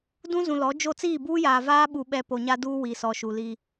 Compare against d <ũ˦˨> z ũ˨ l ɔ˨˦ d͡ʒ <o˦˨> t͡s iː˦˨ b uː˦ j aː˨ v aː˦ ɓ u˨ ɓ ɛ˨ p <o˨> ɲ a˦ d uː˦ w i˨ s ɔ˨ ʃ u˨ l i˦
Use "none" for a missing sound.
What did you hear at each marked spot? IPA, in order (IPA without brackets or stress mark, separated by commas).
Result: ũ˦, o˦˨, o˨